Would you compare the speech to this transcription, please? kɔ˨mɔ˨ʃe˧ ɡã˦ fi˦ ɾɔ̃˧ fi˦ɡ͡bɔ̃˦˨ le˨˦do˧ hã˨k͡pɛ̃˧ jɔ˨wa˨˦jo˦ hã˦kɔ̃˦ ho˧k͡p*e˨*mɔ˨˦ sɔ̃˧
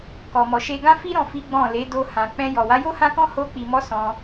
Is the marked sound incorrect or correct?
incorrect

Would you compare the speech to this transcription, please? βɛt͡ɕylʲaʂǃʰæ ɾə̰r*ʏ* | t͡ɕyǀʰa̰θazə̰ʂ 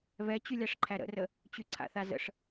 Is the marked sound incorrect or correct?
incorrect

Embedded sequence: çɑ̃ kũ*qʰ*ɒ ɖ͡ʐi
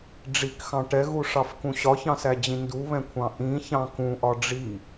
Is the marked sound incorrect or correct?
incorrect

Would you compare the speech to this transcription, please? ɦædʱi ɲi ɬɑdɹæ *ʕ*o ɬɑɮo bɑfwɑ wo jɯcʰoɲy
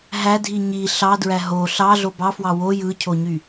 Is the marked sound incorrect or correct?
incorrect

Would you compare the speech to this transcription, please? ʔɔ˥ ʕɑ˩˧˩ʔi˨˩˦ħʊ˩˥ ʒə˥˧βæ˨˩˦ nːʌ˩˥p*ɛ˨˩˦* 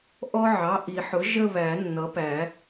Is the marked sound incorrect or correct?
incorrect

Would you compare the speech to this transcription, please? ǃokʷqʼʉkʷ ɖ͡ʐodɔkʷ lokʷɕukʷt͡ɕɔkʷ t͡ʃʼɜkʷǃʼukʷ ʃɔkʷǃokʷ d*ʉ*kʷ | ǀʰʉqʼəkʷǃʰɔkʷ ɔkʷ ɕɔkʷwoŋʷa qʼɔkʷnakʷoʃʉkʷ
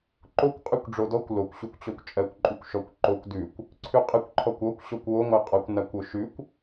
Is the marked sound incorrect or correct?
correct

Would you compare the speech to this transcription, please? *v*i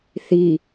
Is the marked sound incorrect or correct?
incorrect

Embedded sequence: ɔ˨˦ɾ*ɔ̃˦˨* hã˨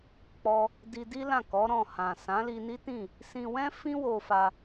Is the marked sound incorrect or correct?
correct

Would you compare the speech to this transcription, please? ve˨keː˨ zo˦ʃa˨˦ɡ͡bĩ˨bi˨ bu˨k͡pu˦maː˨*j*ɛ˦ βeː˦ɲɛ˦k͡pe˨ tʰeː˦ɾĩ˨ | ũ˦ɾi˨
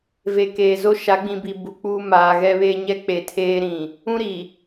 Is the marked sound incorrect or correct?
incorrect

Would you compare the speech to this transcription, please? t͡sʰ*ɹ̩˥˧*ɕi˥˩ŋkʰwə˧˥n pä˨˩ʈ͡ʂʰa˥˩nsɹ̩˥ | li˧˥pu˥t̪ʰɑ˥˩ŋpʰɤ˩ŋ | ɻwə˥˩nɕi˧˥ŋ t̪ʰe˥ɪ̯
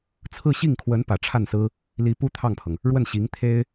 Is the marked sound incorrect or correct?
correct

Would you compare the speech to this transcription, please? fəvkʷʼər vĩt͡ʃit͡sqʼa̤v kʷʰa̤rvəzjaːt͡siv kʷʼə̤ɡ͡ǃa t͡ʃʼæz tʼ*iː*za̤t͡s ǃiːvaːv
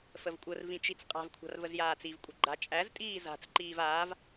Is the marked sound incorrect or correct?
correct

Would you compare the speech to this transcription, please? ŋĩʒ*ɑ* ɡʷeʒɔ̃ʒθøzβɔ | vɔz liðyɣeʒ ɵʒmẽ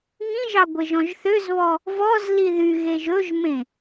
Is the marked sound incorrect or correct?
correct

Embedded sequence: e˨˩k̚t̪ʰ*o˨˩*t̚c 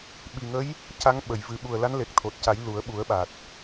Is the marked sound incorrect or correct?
correct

